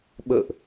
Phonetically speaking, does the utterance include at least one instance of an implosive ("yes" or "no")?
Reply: yes